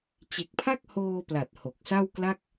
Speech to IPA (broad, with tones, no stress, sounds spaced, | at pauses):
t͡ɕ e˨˩ k̚ pʰ a˥˩ k̚ h oː˧ p l a˨˩ t̚ h o˨˩ k̚ s a˥˩ w k l a˥˩ k̚